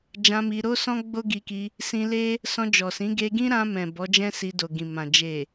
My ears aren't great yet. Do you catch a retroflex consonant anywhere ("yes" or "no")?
no